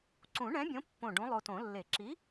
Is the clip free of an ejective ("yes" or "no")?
yes